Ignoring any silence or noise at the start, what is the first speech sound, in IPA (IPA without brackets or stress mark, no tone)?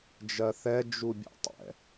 d͡ʒ